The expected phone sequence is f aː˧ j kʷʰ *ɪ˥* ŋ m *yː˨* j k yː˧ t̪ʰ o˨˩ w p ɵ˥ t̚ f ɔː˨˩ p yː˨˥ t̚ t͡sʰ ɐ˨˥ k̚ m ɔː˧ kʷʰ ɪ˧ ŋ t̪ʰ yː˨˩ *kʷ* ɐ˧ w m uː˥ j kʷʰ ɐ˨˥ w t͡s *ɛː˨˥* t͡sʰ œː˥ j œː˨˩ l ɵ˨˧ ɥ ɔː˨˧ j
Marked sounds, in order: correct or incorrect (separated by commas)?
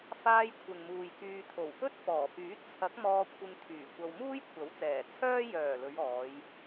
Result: incorrect, incorrect, correct, incorrect